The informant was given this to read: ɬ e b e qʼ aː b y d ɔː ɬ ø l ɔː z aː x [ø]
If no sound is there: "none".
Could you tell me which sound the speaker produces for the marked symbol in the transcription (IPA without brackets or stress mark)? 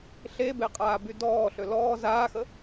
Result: ə